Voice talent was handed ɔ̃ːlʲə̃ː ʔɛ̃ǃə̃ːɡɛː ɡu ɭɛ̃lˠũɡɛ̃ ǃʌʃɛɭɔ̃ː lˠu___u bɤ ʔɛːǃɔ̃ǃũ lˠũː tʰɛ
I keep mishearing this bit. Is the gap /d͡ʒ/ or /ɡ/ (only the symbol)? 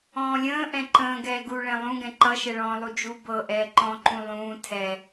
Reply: d͡ʒ